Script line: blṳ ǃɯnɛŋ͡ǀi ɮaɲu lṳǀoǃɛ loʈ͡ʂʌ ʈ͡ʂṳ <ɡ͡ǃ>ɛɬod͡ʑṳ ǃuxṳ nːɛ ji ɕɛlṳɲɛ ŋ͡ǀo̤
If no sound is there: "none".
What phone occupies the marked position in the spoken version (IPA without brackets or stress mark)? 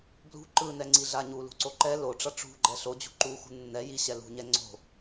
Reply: ɡ͡ǃ